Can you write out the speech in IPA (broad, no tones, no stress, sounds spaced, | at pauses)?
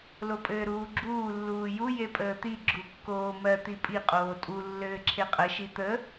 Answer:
l o pʼ ɘː ɾ uː ɡ͡ǁ uː lː uː j u j e pʼ əː t̪ i ɡ͡ǁ u kː oː m ɜ t̪ i pʼ i qʼ oː tʼ u lː ɘː ǁʰ e qʼ ə ʃ i t̪ ə